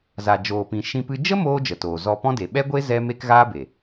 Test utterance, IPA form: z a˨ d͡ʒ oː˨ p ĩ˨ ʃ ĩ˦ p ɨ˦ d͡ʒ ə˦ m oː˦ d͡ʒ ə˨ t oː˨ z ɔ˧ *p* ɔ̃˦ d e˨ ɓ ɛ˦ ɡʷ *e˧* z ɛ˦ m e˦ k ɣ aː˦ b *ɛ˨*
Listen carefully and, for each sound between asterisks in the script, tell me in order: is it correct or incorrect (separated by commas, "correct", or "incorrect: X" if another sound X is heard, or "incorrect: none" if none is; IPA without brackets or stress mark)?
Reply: correct, incorrect: e˦, incorrect: e˨